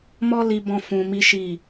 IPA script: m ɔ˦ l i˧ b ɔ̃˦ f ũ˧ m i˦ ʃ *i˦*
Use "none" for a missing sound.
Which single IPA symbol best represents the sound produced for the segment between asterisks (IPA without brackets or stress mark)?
i˦˨